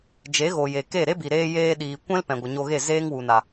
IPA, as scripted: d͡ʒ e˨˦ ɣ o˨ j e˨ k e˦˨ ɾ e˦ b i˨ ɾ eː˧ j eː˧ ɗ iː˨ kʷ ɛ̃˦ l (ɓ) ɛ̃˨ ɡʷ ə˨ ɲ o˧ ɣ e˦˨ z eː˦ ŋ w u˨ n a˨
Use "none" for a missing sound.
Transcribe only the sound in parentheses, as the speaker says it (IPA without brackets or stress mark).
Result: p